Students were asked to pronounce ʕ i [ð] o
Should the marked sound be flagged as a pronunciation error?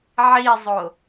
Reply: yes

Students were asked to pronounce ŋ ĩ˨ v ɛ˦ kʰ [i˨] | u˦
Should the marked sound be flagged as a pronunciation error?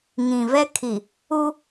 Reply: no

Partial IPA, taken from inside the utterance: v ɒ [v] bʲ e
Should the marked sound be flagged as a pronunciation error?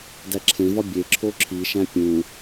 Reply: yes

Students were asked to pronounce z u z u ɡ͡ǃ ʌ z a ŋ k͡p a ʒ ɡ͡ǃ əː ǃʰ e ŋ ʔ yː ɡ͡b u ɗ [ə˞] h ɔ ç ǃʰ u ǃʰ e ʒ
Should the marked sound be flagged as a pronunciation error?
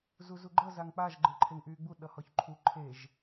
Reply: yes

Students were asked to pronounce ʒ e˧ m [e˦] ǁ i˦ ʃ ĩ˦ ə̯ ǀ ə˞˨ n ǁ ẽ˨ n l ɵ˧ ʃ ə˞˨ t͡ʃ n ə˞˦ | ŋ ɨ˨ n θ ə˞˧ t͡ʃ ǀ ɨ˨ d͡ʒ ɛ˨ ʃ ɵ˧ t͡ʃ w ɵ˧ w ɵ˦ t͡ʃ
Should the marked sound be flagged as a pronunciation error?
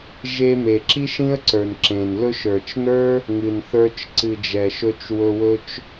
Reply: yes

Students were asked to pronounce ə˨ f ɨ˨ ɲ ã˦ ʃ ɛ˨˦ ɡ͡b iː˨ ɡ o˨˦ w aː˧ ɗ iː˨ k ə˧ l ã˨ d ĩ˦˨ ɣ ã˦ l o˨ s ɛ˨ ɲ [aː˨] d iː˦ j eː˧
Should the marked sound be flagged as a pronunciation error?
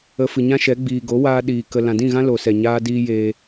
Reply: yes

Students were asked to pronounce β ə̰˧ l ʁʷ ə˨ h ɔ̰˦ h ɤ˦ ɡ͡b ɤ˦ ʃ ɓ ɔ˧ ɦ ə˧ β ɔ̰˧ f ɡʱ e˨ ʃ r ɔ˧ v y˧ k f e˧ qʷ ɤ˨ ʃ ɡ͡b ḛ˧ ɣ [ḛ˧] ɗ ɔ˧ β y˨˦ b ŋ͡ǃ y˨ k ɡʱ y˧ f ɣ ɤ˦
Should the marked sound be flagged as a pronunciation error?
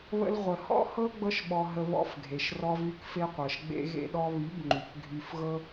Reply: no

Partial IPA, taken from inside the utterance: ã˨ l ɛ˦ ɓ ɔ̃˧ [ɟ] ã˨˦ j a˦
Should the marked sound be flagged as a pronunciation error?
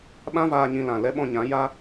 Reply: yes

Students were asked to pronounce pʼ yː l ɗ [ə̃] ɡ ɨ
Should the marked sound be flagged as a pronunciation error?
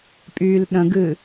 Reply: no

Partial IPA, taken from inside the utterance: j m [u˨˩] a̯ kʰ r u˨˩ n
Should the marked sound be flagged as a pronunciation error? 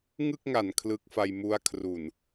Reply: yes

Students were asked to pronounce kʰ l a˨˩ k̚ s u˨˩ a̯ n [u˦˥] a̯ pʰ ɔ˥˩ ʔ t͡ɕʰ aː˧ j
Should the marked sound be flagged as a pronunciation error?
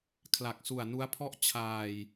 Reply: no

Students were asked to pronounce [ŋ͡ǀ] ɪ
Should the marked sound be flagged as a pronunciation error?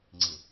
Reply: no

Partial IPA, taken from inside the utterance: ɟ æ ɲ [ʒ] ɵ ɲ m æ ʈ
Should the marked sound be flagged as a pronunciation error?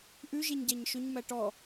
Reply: yes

